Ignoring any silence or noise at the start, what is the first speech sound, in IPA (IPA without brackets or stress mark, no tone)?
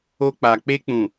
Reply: o